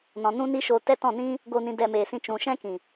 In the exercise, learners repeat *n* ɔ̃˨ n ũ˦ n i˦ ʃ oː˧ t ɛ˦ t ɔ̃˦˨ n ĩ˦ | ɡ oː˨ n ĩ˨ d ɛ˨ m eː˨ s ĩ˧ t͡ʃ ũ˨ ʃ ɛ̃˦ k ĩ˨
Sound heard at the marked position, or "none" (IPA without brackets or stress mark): n